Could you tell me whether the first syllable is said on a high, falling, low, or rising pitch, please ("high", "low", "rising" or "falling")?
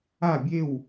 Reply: falling